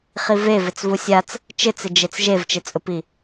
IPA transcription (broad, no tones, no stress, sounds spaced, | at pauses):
χ i v e v ɪ t͡s v u sʲ a t͡s | t͡ʃ ɪ t͡s ɪ d͡ʒ e t͡s ʒ e v t͡ʃ ɪ t͡sʼ ʊ p i